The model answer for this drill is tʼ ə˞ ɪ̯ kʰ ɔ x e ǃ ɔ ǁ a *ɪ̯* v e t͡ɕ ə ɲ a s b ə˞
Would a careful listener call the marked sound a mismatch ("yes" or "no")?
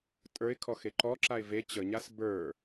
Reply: no